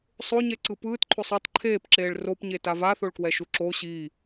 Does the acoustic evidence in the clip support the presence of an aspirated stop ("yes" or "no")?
yes